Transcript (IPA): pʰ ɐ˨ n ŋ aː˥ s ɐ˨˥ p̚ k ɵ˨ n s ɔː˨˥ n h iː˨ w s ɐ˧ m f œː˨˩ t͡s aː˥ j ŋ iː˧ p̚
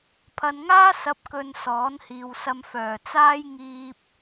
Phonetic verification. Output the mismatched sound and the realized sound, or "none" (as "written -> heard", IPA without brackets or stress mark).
none